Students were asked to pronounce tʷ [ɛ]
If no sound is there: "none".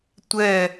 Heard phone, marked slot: ɛ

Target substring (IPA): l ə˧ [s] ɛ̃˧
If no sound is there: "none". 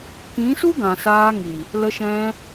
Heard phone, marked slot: ʃ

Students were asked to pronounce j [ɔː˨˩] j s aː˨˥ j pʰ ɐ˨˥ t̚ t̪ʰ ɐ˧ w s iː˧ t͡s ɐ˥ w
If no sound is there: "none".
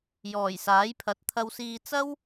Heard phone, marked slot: ɔː˨˩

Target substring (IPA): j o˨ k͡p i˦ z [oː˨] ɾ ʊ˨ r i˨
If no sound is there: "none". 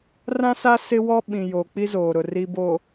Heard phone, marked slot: oː˨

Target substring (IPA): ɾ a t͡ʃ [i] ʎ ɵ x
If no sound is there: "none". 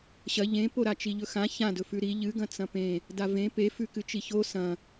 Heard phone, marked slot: i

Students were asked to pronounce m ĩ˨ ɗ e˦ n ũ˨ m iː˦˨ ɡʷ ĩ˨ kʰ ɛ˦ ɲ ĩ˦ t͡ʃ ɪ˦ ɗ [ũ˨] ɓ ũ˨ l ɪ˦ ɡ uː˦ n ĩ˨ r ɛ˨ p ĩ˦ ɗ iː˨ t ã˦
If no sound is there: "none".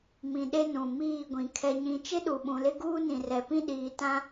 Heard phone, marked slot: u˨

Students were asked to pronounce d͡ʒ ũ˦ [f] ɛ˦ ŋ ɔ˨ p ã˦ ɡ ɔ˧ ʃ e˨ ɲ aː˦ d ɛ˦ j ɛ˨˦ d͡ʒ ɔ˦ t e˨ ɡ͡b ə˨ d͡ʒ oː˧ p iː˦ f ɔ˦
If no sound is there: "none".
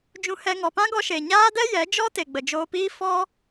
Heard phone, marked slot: h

